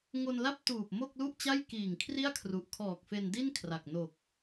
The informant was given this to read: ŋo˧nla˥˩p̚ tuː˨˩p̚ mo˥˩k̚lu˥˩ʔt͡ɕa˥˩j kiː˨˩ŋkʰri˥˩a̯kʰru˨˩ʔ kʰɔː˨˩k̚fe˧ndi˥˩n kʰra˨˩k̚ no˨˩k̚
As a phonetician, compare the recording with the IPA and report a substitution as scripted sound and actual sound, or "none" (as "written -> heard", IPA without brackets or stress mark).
none